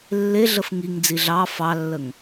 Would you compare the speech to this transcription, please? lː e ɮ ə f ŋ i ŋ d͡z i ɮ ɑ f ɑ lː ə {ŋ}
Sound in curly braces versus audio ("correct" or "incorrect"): correct